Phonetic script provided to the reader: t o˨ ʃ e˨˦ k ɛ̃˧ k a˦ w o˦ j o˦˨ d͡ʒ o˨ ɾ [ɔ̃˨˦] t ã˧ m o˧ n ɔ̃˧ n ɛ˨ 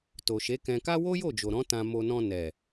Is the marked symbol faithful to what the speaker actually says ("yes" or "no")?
yes